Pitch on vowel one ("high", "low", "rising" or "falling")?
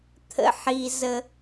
high